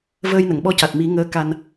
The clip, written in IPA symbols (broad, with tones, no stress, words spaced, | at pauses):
vəː˧jnə˨˩˨ŋɓɔ˧ca˨˩t̚ mi˨˩˦ŋəː˧˥ ka˧n